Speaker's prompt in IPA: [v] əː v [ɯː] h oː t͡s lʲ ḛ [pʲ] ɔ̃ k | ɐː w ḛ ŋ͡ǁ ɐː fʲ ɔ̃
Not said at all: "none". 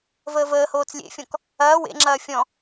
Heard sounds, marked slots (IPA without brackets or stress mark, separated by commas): v, əː, fʲ